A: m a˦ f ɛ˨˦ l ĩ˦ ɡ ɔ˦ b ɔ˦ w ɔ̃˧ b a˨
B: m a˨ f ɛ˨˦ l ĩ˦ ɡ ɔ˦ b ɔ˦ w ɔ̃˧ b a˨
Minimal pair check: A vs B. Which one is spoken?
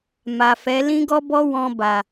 B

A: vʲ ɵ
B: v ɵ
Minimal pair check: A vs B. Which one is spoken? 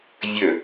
A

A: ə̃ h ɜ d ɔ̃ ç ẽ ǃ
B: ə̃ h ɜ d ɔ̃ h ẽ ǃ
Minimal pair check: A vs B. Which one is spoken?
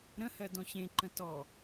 A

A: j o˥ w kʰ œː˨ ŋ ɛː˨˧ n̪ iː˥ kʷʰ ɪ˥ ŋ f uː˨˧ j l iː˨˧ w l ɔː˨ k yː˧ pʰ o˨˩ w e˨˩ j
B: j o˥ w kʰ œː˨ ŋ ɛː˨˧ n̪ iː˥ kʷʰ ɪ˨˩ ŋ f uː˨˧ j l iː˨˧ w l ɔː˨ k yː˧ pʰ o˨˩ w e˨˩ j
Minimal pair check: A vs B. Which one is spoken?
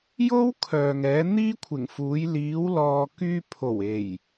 B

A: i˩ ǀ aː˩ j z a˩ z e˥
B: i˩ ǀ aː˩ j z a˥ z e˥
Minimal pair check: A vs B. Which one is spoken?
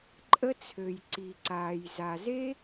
A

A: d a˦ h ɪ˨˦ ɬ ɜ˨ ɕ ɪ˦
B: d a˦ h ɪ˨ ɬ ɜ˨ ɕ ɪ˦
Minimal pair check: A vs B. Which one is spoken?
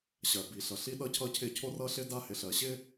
B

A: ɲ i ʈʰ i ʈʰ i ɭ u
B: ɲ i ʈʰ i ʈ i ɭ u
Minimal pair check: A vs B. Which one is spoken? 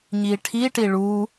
B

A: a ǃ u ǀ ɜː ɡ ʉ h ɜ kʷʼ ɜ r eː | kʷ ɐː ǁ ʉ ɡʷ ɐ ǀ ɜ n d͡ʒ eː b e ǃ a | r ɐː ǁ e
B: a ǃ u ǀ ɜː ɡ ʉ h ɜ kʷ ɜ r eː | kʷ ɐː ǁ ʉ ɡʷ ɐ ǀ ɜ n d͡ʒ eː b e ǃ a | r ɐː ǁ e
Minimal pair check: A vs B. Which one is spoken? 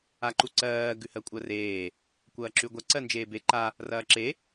A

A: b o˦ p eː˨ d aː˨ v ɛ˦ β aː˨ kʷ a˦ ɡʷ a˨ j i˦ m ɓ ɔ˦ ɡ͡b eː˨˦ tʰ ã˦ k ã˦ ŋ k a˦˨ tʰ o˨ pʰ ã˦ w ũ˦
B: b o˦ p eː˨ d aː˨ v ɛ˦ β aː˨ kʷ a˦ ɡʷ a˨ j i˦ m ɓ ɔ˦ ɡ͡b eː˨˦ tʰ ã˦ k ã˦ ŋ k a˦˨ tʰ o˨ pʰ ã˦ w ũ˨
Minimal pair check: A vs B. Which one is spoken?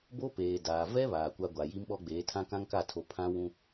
A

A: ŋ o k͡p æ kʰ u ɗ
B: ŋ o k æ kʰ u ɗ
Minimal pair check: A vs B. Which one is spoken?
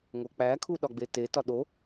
A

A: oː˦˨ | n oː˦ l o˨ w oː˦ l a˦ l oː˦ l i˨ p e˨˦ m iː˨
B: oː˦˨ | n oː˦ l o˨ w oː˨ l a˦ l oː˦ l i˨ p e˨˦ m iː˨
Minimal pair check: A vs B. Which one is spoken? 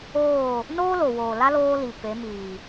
B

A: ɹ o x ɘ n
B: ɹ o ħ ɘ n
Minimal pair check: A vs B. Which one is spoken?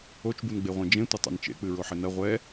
B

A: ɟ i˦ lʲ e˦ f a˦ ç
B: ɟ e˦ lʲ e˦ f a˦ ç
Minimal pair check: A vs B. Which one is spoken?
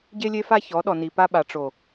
B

